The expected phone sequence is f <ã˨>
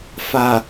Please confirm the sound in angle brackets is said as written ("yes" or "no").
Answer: no